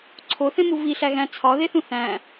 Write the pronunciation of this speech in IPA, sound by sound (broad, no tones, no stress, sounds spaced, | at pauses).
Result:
ǀʰ o θ ẽ m u v i ɬ æ ɣ æ̃ t͡sʰ ɒ ð e θ ũ θ æ̃